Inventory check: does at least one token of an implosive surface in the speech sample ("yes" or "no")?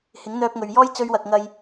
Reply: no